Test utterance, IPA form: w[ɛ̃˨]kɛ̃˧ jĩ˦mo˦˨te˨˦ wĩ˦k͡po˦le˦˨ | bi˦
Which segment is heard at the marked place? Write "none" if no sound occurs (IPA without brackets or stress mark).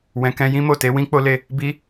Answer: ɛ̃˨